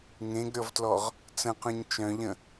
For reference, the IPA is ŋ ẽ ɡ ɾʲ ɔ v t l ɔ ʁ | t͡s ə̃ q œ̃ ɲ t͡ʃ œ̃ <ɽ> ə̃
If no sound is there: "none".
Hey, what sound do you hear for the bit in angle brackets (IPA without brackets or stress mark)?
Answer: ʎ